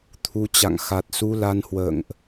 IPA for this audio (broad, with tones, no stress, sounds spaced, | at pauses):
t̪ʰ u˨˦ t͡ɕ a̰˧˨ ŋ x a˨˩ t̚ s u˧ l a˧ n h w ə̰ː˧˨ ŋ ʔ